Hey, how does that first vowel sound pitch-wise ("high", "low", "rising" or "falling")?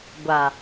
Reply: low